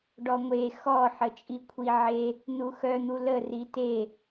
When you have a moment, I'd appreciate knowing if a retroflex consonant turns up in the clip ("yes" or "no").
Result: yes